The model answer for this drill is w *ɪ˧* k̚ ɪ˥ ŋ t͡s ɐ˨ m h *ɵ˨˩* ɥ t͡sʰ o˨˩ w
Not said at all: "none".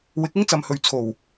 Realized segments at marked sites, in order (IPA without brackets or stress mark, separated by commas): ɪ˨˥, ɵ˨